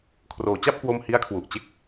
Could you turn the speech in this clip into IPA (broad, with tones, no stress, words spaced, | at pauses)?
kʰroː˩˦t͡ɕa˥˩p̚ kwo˥˩m hi˦˥a̯kʰwu˨˩ʔt͡ɕe˥˩k̚